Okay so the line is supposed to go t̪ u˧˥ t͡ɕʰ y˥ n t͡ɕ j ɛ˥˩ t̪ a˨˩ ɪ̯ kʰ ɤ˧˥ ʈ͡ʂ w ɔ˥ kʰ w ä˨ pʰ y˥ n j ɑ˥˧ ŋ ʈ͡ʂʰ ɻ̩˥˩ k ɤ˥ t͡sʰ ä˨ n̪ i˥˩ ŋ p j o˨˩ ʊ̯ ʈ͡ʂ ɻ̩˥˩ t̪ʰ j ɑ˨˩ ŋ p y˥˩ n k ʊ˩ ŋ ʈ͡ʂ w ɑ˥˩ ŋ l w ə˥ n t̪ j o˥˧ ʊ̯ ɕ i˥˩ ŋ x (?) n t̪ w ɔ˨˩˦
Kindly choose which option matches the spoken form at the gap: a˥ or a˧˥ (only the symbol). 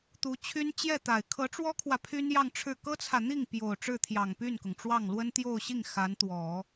a˧˥